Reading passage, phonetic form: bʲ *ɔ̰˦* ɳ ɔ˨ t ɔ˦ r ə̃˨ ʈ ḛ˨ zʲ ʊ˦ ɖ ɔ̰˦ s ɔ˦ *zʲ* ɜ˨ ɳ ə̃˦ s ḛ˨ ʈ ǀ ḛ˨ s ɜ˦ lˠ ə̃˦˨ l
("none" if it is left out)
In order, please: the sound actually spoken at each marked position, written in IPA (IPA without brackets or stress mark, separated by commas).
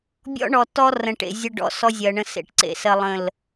ɔ̰˦, zʲ